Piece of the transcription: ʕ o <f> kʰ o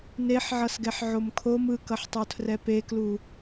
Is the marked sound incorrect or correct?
incorrect: m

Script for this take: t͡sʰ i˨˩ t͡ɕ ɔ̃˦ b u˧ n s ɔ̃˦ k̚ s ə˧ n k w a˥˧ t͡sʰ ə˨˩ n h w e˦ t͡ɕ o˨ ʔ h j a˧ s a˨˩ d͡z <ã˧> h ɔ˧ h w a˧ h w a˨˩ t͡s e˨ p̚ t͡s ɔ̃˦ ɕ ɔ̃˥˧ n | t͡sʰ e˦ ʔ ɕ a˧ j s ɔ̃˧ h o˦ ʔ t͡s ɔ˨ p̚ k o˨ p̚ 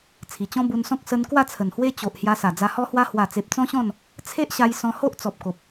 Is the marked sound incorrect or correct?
incorrect: a˧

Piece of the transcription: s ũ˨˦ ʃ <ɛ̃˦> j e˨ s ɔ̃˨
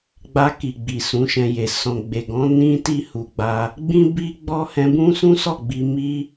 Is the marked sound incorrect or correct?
incorrect: ɛ̃˧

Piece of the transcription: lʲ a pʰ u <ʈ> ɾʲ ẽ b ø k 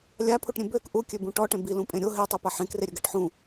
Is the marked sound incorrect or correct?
correct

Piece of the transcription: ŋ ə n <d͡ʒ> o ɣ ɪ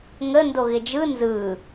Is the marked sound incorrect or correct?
incorrect: d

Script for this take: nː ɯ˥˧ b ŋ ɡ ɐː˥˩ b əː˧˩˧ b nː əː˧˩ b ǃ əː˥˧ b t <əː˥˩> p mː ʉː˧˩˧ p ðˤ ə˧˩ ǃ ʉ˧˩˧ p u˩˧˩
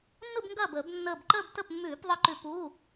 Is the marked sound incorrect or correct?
incorrect: ə˥˩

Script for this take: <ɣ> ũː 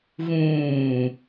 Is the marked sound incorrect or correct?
correct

